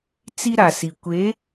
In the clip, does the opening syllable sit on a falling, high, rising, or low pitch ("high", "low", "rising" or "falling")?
high